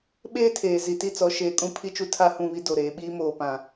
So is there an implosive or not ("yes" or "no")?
yes